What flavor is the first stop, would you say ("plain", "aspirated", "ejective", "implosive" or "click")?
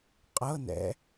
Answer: ejective